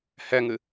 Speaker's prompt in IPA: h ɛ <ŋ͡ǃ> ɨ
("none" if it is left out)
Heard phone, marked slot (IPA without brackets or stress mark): ŋ